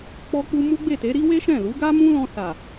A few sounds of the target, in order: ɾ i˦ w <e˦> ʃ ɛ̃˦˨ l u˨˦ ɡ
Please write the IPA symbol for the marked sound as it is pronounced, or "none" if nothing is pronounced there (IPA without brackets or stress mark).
e˦